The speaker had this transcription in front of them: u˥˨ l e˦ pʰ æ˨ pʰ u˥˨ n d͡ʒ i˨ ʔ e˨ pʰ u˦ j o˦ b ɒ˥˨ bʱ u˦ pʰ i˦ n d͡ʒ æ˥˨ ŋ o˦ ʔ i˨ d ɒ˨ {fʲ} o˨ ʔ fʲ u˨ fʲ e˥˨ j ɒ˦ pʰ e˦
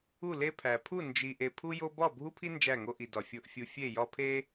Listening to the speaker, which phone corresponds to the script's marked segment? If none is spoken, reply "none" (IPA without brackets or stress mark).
fʲ